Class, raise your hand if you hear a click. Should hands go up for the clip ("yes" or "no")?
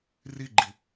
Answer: yes